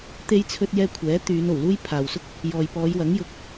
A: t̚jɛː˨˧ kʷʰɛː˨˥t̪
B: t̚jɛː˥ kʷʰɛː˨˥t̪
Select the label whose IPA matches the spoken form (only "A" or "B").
B